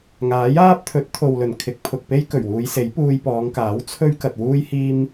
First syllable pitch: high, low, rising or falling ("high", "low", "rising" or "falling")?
rising